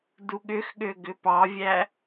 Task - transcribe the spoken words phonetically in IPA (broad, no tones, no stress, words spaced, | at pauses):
duɠʏxɠø ɡʏpɑvʲæ